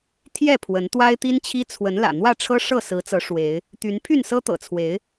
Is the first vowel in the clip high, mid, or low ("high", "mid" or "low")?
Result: mid